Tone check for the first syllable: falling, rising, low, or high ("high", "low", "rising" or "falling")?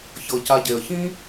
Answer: low